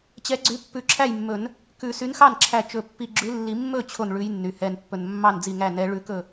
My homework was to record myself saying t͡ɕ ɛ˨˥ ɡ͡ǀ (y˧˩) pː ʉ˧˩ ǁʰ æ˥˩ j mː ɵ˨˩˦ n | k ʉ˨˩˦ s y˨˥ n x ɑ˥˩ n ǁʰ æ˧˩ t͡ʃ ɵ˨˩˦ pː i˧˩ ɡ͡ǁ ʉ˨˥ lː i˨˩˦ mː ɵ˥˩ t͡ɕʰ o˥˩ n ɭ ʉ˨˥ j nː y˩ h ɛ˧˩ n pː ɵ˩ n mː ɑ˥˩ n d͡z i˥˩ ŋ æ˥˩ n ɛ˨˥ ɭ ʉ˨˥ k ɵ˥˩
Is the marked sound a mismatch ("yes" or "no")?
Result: yes